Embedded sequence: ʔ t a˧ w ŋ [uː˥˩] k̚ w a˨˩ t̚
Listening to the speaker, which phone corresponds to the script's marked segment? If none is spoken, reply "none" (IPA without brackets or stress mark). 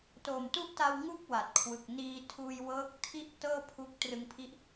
u˥˩